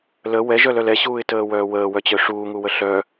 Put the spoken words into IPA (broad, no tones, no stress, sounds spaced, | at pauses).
l ə w ɛ ʒ œ l œ l ɛ ɕ uː ɪ̯ t əː w œː w əː w œ t͡ɕ œ ʂ uː ŋ u w ə ɬ œ